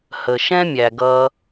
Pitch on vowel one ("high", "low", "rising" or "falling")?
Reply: low